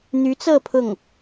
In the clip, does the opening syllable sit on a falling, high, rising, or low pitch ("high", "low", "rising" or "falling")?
rising